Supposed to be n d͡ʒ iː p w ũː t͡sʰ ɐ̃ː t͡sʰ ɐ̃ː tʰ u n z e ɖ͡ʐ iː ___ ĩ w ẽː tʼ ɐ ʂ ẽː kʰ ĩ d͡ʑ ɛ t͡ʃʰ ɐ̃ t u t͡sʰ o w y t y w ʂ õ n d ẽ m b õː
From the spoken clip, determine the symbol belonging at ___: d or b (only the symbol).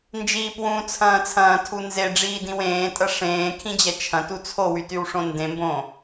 d